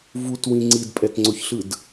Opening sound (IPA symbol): v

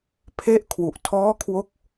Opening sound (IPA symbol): pʰ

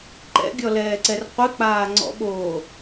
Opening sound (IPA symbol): ǃ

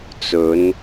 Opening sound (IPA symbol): t͡s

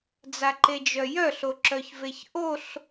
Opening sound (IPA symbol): d͡z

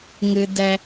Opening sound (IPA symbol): ŋ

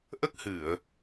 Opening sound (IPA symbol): ʔ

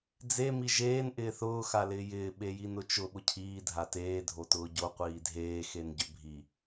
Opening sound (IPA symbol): d͡z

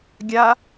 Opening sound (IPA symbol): ɡʲ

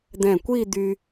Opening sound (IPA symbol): d̪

